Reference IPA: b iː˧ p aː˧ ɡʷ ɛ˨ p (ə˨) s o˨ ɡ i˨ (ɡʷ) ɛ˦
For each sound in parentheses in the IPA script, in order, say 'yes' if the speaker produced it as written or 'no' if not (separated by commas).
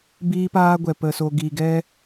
yes, no